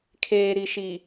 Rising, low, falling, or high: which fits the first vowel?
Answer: low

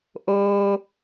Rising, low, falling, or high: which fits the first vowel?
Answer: low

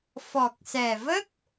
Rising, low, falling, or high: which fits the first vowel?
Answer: low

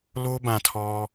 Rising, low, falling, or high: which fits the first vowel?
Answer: high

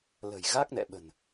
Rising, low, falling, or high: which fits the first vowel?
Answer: low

